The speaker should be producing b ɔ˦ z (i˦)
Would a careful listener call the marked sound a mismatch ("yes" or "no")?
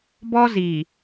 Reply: yes